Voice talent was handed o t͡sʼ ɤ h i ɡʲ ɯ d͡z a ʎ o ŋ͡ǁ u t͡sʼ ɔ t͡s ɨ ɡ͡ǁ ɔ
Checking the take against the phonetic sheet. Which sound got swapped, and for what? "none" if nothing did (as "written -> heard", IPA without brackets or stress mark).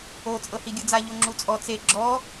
ɨ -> e